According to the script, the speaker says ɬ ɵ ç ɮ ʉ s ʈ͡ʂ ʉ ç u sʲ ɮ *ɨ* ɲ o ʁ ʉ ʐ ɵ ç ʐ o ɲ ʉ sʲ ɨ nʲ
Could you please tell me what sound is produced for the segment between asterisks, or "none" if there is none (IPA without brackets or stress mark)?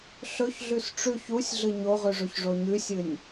ɨ